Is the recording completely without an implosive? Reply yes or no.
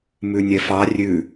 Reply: yes